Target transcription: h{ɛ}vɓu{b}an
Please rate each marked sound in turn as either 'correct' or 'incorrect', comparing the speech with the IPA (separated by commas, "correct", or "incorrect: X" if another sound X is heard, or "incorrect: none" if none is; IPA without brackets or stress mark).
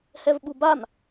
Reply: correct, correct